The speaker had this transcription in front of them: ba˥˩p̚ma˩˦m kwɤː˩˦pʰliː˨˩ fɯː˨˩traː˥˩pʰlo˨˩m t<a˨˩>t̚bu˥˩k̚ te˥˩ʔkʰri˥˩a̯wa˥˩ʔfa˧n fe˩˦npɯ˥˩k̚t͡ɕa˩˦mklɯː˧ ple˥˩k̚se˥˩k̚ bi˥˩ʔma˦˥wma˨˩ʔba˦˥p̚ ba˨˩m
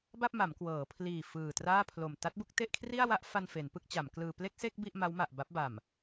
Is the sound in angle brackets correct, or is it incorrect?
incorrect: a˦˥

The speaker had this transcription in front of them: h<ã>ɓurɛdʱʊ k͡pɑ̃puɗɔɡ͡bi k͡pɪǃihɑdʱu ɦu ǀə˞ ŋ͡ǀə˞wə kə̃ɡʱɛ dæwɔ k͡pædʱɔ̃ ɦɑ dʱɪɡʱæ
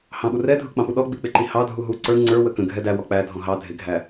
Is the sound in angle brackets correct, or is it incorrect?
incorrect: ɑ̃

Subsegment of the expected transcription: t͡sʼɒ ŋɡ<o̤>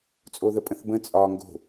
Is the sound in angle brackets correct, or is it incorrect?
correct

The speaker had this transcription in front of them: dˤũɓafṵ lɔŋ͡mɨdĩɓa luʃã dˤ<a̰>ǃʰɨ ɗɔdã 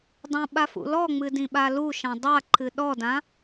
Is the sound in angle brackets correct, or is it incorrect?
incorrect: a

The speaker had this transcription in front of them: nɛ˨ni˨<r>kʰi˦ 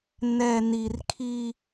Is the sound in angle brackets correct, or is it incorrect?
correct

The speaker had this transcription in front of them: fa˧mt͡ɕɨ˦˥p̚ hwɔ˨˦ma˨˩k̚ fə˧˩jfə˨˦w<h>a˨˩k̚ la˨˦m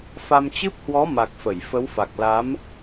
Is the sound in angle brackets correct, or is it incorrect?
incorrect: f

